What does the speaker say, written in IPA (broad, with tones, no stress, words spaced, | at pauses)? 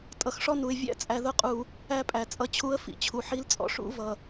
tʼʌ˨xʂɔ˦nu˨ɪ̯ vʲæ̰˦t͡sʼæ˨ðʊ˦qʼu˨ | æ˦pʼæ˨ t͡sʼʌ˦t͡ɕʰu˦ə̯ fḭ˨t͡ɕʰu˨ħi˦lt͡sʼɔ̰˨ ʂṵ˦ vʌ˨